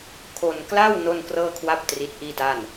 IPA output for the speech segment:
kʰ o˧ n k l a˥˩ w n o˥˩ n k r ɤː˥˩ kʰ w a˥˩ p̚ t r i˦˥ t̚ ʔ iː˥˩ t a˥˩ n

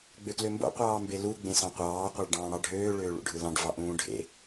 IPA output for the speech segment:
ɡ͡b ø k l ø m b o̰ qʷ ɑː m b e l u ɡ͡b ẽ s ɑ̃ qʷ ɑː qʷ ɑ ɭ ɖ ɑ̃ː ɽ ɑ ɖʱ øː ɭ øː ɭ ṵ ɖʱ ɯ l ɑ̃ ɖ v ɑ ʔ ũː ɖʱ ḛ

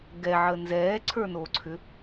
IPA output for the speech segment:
ɡ ɛ ʕ ə n z ɛː ǀʰ ə˞ n oː ǀʰ ʏ

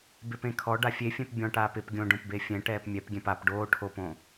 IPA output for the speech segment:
b ɪ p ẽ kʰ ɔ ɖ a fʲ e fʲ ɛ̃ p bʲ ɔ̃ ʈ aː p ɪ p ɡʲ õ ɖ õ p b e fʲ ɛ̃ ʈ ɛː p mʲ ɛ p ɡʲ ɛ̃ p a p ɖ oː ʈʰ o p õ

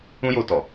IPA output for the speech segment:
ũ˦ j o˧ t ɔ˨

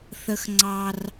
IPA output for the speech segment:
θ ə˦ x ŋ͡ǀ ɑ˦ r

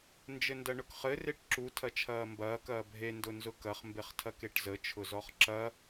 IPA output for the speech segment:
n d͡ʒ ɘ n d ɐ ɳ ʊ k χ ɘ r e ʈ ǁ u tʰ ɐ t͡ʃʰ ɐː m b ɐː k ɐː bʱ e n d ʊ n z ʊ k ɐ χ m b e χ tʰ ɐ k e ʈ z ə t͡ʃʰ ʊ z ɔ χ ǁ ɐ

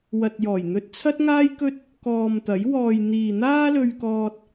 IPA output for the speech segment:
w ɐ˨ t̚ j ɔː˨˩ j n̪ ɵ˧ t̚ t͡sʰ ɐ˥ t̚ ŋ aː˥ j k ɵ˥ t̚ | k ɔː˨ m t̪ ɐ˨˥ j w ɔː˨ j n̪ iː˨ n̪ aː˥ l ɵ˧ ɥ k ɔː˧ t̚

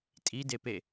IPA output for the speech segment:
tʼ i d e p e

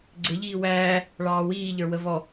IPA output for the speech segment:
ɡ͡ǀ ɪ ʎ iː w æː | ɭ ɑː w iː ʎ ə˞ w ə v ɔ

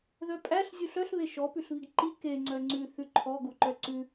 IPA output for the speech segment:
ð œ pʼ æ ɬ zʲ u ɬ œ ɬ β e ʃ ɔ p ʉ ɬ β i ɡ ǃ i k e ŋ͡ǀ œ ŋ͡ǀ ʉ θ ʉ ǃʰ ɔ ɡ u ǃ œ ǀ ʉ

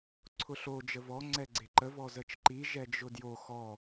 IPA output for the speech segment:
ǀʰ ʊ ɬ o d͡ʒ ə v ɔ ŋ͡ǀ ɛ ɡ͡ǀ e ǃ ə v ɔ z ə t͡ʃ ǃ i ʒ ɛ d͡ʒ ʊ d j o x ɔ

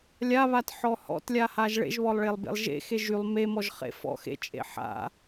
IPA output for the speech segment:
lʲ a β a t ħ ɔ h ɔ̰ t lʲ a h a ʒ ɭ ḛ ʒ β ɔ lˠ ɭ e lˠ b ḛ lˠ ʒ ḛ x e ʒ y lˠ m e m ɔ ʒ χ ḛ f ɔ̰ x ḛ t͡ʃʼ ḛ ħ a̰

